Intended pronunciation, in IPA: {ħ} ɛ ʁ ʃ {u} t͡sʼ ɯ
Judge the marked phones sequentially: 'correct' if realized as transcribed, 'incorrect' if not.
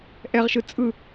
incorrect: ʔ, incorrect: ɯ

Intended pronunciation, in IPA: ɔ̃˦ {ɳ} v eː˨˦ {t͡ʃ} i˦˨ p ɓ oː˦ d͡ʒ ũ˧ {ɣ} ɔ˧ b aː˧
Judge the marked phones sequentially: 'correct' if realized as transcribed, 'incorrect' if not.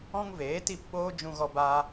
incorrect: ŋ, incorrect: t, correct

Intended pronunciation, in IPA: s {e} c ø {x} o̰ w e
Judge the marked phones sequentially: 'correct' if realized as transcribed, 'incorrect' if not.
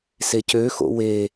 correct, correct

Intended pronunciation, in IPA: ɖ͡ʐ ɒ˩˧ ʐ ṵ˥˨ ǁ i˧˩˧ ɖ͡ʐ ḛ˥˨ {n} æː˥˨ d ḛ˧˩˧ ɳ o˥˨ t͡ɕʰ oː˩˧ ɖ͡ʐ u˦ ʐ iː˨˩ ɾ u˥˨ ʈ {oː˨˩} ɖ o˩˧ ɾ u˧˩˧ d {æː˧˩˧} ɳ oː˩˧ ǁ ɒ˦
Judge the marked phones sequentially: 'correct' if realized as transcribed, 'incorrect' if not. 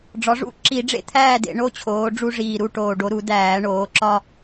incorrect: t̪ʰ, correct, correct

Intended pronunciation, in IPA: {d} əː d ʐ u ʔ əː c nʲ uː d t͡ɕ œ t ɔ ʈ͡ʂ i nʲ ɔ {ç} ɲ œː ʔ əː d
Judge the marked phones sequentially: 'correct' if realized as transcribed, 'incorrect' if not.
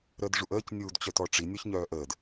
incorrect: ɾ, correct

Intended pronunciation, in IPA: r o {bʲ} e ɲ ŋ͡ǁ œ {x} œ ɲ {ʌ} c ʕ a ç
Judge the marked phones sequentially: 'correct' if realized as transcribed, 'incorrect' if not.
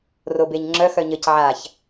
incorrect: b, correct, incorrect: ə

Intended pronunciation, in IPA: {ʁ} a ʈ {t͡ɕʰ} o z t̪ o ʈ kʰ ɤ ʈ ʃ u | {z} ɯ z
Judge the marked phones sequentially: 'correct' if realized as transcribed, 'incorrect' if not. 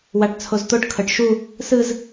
incorrect: w, incorrect: t͡sʰ, incorrect: s

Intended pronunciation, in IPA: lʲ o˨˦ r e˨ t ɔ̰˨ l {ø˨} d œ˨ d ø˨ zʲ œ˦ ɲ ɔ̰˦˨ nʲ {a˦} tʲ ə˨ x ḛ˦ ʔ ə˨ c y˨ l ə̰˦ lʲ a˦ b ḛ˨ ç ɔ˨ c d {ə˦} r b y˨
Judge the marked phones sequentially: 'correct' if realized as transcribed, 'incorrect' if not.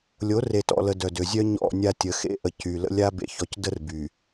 incorrect: ə˨, correct, correct

